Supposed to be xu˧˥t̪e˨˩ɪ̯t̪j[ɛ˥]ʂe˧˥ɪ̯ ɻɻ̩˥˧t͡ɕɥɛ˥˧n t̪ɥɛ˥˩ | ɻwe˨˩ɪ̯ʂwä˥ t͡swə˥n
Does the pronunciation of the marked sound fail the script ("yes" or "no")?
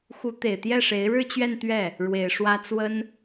yes